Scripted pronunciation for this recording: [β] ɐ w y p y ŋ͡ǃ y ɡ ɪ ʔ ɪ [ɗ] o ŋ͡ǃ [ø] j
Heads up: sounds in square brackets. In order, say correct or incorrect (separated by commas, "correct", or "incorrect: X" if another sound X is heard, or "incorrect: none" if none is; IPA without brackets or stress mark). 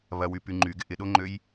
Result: correct, correct, correct